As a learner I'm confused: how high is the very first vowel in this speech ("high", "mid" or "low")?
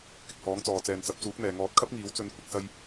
high